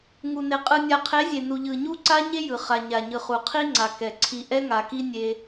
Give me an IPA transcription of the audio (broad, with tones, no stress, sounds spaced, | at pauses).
ŋ u˨ n e˨ qʼ ɯ˨ nʲ a˨ qʰ e˨˦ zʲ e˨ n u˨ ʎ ɯ˨ ɲ u˦ ǀ a˦ ɲ e˦ j ɯ˨ χ a˨ ɲ a˨ ɲ ɯ˨ χ u˨ qʰ i˦ ŋ͡ǀ a˨ k ɛ˨ ǀʰ i˨ ʔ ɛ˦ ŋ a˨ k i˦ nʲ e˦